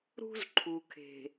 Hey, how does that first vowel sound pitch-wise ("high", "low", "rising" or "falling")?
high